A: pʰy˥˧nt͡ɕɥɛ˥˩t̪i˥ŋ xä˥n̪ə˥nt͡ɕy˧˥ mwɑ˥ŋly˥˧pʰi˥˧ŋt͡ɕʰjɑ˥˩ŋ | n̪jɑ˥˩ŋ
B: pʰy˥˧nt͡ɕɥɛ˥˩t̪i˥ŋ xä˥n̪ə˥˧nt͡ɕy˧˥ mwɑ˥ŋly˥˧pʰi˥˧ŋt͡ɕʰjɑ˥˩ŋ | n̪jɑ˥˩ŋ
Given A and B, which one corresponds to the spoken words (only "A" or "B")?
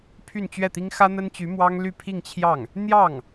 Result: A